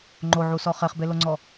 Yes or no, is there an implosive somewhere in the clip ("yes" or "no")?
no